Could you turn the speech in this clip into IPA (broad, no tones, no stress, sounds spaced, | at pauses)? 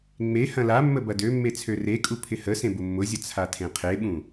ŋ͡m e h ɐ̃ l a mː ə b ɐ d ø mː e t͡sʰ ø r e kʼ u pʰ ɪ h ə s ẽ b ʊ mː ʊ zʲ ə t͡sʰ a tʰ ẽ qʰ e ɓ ũ